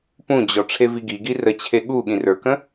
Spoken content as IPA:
p ũ d͡ʑ ɔ ʈ͡ʂʰ e v i ɡ i ɡ i r ə t͡ɕʰ e ɠ u ɠ ĩ r ə˞ k ə̃

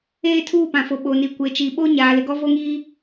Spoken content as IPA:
eː˦ tʰ uː˦˨ p ã˨ f o˨ ɓ o˨ n i˨ kʷ e˨ t͡ʃ i˨ ɓ o˦ ɲ aː˨ l ɪ˨ ɡ ɔ˦ v o˦ ŋ iː˦

